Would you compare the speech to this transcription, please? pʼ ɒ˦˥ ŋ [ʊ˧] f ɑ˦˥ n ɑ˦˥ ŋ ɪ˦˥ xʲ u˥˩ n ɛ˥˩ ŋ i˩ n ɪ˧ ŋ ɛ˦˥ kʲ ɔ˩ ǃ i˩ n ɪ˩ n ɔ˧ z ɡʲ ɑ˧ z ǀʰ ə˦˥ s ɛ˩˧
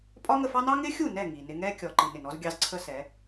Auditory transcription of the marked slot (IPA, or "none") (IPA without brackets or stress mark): ə˧